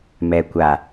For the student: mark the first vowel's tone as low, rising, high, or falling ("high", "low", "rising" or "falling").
low